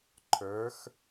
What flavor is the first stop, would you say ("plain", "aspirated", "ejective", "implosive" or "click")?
click